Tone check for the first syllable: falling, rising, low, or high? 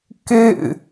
falling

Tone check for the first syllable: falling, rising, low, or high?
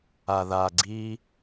low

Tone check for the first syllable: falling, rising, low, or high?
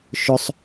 high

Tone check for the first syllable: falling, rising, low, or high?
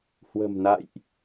low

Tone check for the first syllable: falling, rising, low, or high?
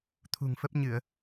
low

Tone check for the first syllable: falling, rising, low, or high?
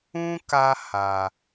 high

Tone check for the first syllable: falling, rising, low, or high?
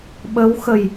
rising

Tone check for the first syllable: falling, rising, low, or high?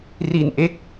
low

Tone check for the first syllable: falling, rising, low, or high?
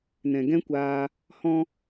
low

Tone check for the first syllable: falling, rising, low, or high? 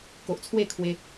low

